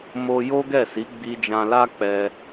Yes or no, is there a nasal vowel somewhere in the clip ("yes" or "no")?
yes